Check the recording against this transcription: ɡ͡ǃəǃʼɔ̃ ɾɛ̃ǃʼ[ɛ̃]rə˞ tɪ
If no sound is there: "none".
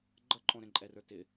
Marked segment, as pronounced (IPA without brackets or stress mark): ɛ